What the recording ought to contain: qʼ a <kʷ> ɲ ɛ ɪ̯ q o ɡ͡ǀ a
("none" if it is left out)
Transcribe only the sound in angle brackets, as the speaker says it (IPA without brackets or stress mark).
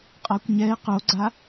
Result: kʷ